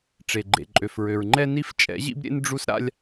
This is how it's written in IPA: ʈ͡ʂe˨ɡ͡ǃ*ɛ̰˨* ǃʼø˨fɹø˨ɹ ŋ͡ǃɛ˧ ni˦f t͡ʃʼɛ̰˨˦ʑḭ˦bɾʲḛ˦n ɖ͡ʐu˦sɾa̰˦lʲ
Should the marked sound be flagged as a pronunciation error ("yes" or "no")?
yes